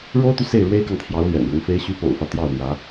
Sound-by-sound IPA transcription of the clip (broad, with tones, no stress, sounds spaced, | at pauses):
ɻ o˥ ʊ̯ t̪ y˨ s e˥˩ ɪ̯ ɻ w e˥ ɪ̯ k ɑ˨ ŋ t̪ʰ j ɑ˧˥ ʊ̯ l ɥ ɛ̰˨˩ n ɻ ʊ˧˥ ŋ f e˧˥ ɪ̯ ɕ y˧˥ p o̰˨˩ ʊ̯ f ä˦ t̪ j ɑ˥˩ ʊ̯ n̪ j ä˧˥